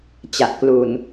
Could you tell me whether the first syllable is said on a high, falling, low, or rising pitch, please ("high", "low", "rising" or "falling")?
low